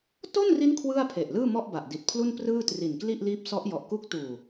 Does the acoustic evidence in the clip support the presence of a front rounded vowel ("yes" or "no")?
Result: no